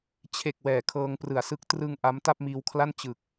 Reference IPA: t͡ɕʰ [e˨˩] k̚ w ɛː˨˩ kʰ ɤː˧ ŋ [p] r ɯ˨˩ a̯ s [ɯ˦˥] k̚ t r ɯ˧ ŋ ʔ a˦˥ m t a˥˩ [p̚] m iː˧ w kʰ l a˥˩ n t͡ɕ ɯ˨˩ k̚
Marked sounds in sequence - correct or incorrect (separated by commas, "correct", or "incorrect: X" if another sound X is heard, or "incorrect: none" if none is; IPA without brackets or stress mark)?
correct, correct, correct, correct